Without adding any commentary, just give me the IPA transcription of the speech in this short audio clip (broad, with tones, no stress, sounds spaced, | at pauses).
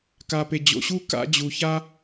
k a˨ p e˨ d͡ʑ o̰˨ ɕ u˦ k a̰˧ d͡ʑ u˨ ç a˦